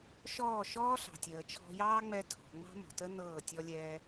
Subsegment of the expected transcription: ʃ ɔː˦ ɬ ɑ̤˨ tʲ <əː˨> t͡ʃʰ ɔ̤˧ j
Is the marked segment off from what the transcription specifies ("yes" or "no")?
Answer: no